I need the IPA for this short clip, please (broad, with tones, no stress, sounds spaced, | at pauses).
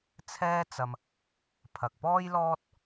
t͡sʰ ɛː˥ t͡s ɐ˧ m | pʰ ɐ˨ k̚ p ɔː˥ j l ɔː˥ t̚